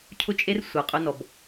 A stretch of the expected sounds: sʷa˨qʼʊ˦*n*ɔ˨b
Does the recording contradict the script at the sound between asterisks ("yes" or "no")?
no